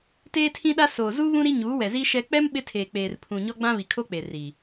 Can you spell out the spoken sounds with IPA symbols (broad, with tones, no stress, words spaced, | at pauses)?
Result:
teː˦tʰĩ˦ɗa˦soː˨ zu˦ βũ˦ ɾi˦ɲuː˨˦wɛ˨zi˦ ʃɛ˦ k͡pɛ˦m ɓɪ˦tʰeː˨ k͡peː˨r pʰũ˨ɲɔ˦ ɡ͡bã˦βi˨kʰo˦k͡pe˨ ri˨